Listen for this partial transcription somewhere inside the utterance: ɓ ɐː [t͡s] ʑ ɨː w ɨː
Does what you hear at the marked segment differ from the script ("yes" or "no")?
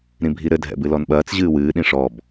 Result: no